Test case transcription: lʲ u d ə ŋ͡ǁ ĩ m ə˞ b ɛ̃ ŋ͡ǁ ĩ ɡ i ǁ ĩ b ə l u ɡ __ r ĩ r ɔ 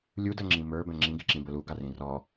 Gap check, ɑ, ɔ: ɑ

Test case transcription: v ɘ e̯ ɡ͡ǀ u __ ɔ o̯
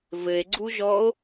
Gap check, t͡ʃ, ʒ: ʒ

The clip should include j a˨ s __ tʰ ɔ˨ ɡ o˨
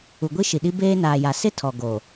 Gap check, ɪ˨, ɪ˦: ɪ˦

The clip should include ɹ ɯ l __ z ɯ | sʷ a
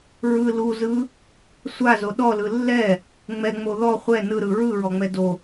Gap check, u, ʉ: u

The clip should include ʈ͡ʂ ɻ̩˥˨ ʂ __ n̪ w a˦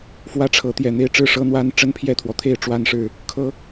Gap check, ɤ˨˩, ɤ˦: ɤ˦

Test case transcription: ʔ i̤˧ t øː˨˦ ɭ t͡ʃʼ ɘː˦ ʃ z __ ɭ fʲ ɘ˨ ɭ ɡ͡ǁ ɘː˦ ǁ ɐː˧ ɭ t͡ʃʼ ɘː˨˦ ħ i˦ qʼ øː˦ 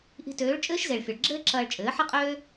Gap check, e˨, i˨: e˨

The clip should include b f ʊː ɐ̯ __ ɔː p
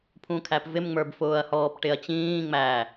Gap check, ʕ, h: h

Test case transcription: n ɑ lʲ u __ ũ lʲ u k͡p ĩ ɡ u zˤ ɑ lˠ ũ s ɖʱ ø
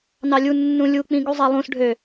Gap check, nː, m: nː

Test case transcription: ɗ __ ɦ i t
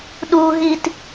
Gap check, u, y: u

